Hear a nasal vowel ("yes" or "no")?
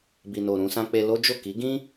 yes